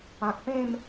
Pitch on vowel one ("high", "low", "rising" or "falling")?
low